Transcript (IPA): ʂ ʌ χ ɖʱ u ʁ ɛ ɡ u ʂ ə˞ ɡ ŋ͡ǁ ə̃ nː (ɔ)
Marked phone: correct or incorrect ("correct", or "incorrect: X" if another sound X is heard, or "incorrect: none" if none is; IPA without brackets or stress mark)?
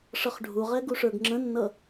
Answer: incorrect: ʌ